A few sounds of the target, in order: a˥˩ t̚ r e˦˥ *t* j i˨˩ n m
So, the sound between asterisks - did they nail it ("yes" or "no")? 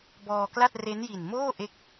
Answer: no